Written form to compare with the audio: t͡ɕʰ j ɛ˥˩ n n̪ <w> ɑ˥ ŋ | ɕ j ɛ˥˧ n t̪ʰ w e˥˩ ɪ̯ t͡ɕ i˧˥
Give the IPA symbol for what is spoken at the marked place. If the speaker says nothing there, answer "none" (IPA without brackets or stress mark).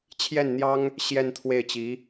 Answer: j